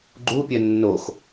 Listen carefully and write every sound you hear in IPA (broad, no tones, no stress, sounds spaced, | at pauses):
ɡ͡ǃ u pʲ œ nː o x